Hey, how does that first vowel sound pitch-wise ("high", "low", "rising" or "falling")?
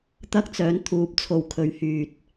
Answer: high